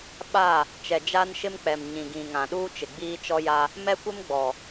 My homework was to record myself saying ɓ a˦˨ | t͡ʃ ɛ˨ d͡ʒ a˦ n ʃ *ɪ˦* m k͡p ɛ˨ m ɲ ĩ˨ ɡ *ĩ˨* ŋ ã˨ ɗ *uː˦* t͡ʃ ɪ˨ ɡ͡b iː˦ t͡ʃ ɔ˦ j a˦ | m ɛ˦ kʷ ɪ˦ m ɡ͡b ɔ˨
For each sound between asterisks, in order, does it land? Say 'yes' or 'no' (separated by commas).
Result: yes, yes, yes